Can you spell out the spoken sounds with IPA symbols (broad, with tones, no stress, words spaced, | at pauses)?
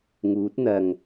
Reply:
ŋuː˨˥t̚n̪ɐ˨ŋ